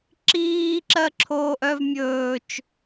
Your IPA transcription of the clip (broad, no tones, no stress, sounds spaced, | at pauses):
ǁ iː ǁ ɜ ǁʰ oː ʔ œ v mʲ ɵː t͡ʃ